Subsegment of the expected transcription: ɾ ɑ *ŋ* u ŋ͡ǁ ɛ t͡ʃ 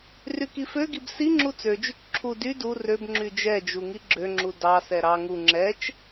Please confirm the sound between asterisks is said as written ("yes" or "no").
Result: yes